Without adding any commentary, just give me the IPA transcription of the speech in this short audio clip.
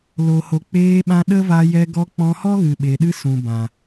l o˨ h o˨ k͡p eː˧ ɓ ã˧ ɗ ə˦ v a˧ j ɛ˧ ɡ ɔ˧ k͡p ɔ̃˧ h ɔ˦ ɣ ɨ˨ ɓ e˨ ɗ ɨ˦ s ũ˨ b ã˨

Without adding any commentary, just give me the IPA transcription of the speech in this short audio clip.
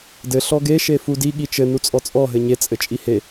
d ɘ ɬ ɔ ɡ e ʃ e f u d i ɠ i t͡ʃ ɘ n u t͡sʼ ɔ t͡sʼ ɔ ɦ ɘ ɲ e t͡sʼ ɘ t͡ʃʼ i h e

